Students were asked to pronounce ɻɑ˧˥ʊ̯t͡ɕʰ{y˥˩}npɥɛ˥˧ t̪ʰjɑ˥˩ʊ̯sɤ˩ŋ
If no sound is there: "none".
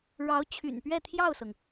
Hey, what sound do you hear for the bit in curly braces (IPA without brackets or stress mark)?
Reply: y̰˨˩